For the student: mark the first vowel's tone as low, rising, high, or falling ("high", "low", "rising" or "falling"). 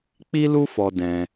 high